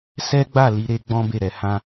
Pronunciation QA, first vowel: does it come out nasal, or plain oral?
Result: oral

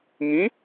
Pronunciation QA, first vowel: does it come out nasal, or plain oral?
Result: nasal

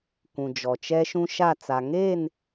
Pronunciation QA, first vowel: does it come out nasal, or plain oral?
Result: nasal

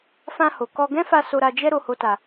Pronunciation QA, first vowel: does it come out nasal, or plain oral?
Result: nasal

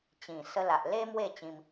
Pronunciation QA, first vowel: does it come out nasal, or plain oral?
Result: nasal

